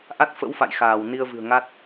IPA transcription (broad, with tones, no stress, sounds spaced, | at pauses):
ʔ a˦˥ t̚ f ə̰˧˥ w f a̰˧˨ j x aː˧˩ w n i˧ ə̯ v ɨ̤˨˩ ə̯ ŋ a˦˥ t̚